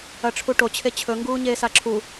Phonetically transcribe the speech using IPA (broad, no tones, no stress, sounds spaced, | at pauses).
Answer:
ɐ ʈ͡ʂʰ u ʈ o t͡ɕʰ e t͡ɕʰ ɵ ŋ ɡ uː ɲ eː s a ǁʰ u